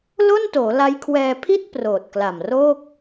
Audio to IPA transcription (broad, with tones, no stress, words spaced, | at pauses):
lo˥˩ntoː˩˦la˦˥jkʰwɛː˧ pʰi˥˩t̚ proː˨˩t̚kla˨˩mroː˥˩k̚